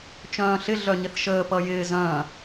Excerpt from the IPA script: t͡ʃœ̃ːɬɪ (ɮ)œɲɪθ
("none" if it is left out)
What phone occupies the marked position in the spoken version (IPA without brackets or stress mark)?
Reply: ɮ